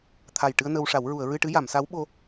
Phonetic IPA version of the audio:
t̪ʰ a˨˩ j ʈ ɨ˧ ə̯ n ə˧ w ʂ a˨˩˦ w ɹ u˨˩˨ ə̯ ɹ ɨ˧ ʈ ɨ˧˥ j a˨˩˨ m s a˧˥ w ɓ o˧

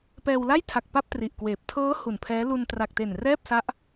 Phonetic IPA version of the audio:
p ɛː˧ w l a˥˩ j tʰ a˨˩ k̚ p a˥˩ p̚ t r i˨˩ ʔ k w eː˨˩ p̚ tʰ ɤː˦˥ h u˨˩ n pʰ ɛː˦˥ l u˧ n t r a˨˩ k̚ t e˨˩ n r ɛː˥˩ p̚ s a˦˥ ʔ

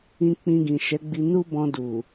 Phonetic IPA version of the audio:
ĩ˧ k͡p ĩ˧ ɡ ĩ˨ ʃ ɛ˨˦ ɡ͡b i˧ n u˦ b ɔ̃˧ d u˨

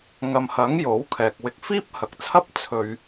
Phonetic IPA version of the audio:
ŋ ɐ˨ m h ɐ˨˥ ŋ j o˨˥ w kʰ ɛː˨ k̚ w ɪ˧ k̚ f iː˥ p̚ h ɐ˨ k̚ t͡sʰ ɐ˥ p̚ t͡sʰ ɵ˧ ɥ

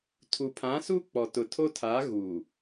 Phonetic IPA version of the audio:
tʰ u˨ pʰ ã˨˦ s u˦ k͡p ɔ˨ t ʊ˨ tʰ o˦ tʰ a˨˦ ɣ u˨

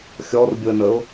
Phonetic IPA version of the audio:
xʲ ɔ r bʲ ʊ ə̯ n ə ʊ̯

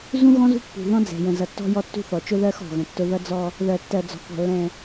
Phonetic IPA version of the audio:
z ũ˦ ɣ ɔ̃˦ z ṳ˦ pː ṳ˨ ð ɔ̃˦ d͡z ɛ̤˨ j ə̃˨ z ʌ˨ tː ɔ̤˦ j ɔ˦ tː ṳ˦ θ ɔ˨ t͡ʃ ʊ˦ ð ɜ˦ x ɔ̤˨ ɣ ə̃˨ tː ʊ˦ ð ʌ˦ d͡z ɔ˦ | ð ɜ˨ tː ɜ˨ d͡z ɔ̤˨ k ɔ̤˨ lː ɛ̃˨

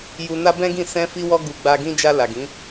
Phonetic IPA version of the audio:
j u˧ n a˦ b ɛ̃˦ ɡ ĩ˦˨ s ɛ̃˧ f i˧ w ɔ˧ ɡ u˧ ɡ͡b a˧ ɡ ĩ˦ d͡ʒ a˧ l a˨ ɡ ĩ˨˦

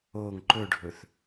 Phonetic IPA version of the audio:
o ŋ ǃ ɵ ɖʱ ɵ θ

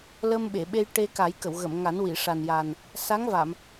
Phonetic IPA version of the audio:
l ə˧ m ɓ e˨˩˨ ɓ e˧ j ʈ e˧ k a˨˩˦ j k ə˨˩˨ w ɣ ə˨˩˨ m ŋ a˨˩˦ n w i˨˩˨ ʂ a˨˩ n j a˨˩ n | s a˧˥ ŋ v a˨˩˨ m

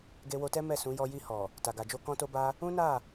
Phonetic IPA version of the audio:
ɡ e˧ w o˧ t ɛ˦ m ɛ˦˨ s ũ˨˦ j ɔ˧ j i˧ h ɔ˨ | t a˨ ɡ a˨ d͡ʒ o˧ k ɔ̃˦ t o˦ b a˦ | ũ˦ n a˦˨

